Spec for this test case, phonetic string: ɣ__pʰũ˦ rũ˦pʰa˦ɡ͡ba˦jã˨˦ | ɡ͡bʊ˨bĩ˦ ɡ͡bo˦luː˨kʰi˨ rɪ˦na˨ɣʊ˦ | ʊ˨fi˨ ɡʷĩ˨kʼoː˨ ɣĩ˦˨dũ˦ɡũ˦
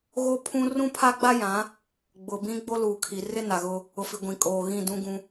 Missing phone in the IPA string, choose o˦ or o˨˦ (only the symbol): o˦